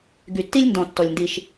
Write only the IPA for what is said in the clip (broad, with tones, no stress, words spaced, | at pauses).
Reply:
ɡy˨tːi˦lʲndɔ̃˨ tːɔ˨lʲndi˨ʃ